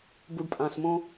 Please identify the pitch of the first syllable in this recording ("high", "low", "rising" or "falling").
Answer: low